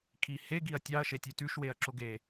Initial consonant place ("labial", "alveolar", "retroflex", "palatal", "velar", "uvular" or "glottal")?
velar